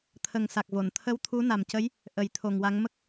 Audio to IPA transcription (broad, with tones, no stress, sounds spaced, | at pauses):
t̪ʰ ə˨˩ ŋ s a˨˩ k̚ v o˨˩˨ n t̪ʰ ə˧˥ w t̪ʰ u˧˥ n a˨˩ m c ə˧˥ j | ʔ ə˨˩˦ j t̪ʰ o˨˩ ŋ w a˧˥ ŋ m ə˦˥ k̚